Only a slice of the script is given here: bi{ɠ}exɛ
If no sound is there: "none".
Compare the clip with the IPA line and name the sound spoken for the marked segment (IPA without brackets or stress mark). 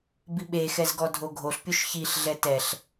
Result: ɓ